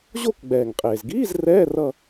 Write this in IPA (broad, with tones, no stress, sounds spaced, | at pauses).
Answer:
ʑ o˦˨ k ɡ͡b ɛː˩ ŋ qʼ eː˩ z ɡ iː˧˥˧ z r ɛː˧˥˧ r ʌ˦˨